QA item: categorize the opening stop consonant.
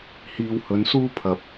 aspirated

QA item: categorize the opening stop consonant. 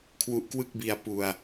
aspirated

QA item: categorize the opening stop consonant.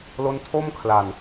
aspirated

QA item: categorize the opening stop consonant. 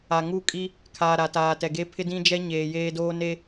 ejective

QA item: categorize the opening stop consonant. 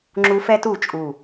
click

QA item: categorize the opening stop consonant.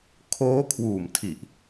aspirated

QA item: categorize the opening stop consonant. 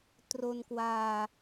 plain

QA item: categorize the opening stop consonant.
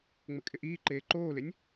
ejective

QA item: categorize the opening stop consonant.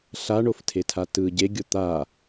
aspirated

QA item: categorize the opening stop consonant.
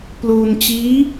plain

